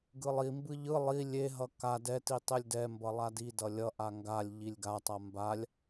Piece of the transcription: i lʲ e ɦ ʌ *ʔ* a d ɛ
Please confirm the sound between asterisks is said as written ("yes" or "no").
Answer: no